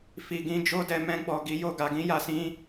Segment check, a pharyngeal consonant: absent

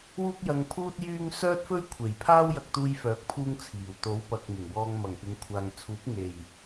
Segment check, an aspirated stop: present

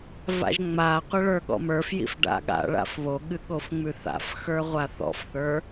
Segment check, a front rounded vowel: absent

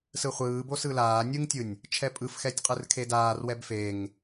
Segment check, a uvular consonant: present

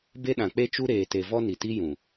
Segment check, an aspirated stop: absent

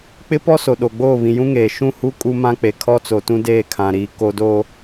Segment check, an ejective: present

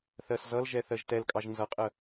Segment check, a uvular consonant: present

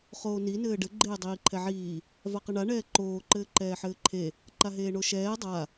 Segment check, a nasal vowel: absent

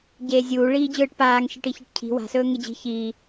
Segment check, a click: absent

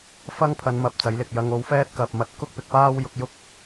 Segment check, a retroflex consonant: absent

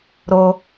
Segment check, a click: absent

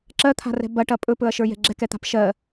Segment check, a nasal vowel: absent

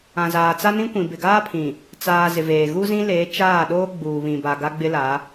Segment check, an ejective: absent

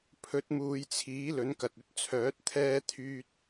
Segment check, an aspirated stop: present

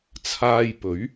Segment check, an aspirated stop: present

